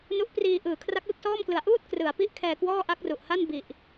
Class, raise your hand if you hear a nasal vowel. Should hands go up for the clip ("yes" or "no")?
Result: no